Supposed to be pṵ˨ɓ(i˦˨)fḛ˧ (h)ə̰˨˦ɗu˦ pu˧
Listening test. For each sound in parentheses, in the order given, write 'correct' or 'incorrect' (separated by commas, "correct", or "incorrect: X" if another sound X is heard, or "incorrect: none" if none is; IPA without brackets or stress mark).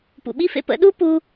incorrect: i˦, incorrect: p